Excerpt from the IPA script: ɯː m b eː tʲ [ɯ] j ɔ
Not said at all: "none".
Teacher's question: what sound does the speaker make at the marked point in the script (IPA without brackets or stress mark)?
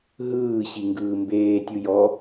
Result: ɯ